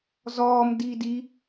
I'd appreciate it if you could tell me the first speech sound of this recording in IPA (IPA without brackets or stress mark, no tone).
z